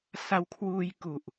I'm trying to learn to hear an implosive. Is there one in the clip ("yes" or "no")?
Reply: no